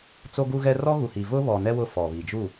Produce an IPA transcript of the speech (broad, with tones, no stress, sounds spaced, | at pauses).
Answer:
t͡s o˦ ɡ u˦ ɣ ɛ˦ r ɔ˦ ɣ u˨ h i˨ v ʊ˦ β ɔ˨ n ɛ˦ w ʊ˦ f ɔ˨ β i˨ d͡ʒ u˦˨